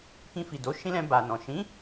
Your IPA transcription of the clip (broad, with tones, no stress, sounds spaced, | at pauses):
k ĩ˧ f i˨ d o˨˦ ʃ ĩ˦ l ɛ̃˧ b a˨ n ɔ̃˨ ʃ ĩ˨˦